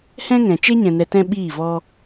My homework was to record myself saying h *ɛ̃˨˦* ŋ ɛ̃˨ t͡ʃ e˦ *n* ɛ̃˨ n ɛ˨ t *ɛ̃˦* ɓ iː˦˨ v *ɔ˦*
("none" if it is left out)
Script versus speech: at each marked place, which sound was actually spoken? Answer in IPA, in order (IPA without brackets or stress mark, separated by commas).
ɛ̃˦, ɲ, ɛ̃˧, ɔ˦